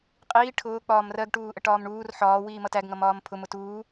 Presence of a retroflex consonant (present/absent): present